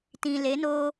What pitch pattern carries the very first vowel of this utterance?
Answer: low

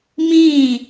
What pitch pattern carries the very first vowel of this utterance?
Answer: falling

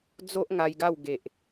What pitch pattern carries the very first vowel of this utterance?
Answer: high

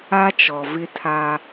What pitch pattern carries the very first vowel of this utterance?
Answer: high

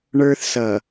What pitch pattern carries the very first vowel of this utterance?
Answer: high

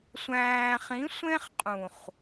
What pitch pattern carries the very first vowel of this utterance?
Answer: low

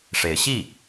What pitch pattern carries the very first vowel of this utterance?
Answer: rising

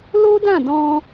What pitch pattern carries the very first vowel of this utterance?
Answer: high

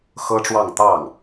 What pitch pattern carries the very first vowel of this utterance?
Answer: high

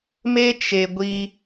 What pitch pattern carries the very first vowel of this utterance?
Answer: high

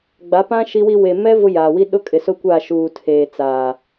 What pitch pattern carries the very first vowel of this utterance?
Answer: rising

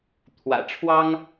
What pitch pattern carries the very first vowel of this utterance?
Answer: low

